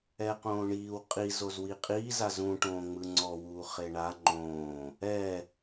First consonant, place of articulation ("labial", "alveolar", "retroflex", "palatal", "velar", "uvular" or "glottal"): uvular